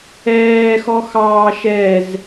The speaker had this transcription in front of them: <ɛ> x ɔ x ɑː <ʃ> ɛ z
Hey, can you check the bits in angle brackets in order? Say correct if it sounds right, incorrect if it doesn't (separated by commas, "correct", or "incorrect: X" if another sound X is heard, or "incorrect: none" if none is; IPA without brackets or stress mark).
incorrect: ɛː, correct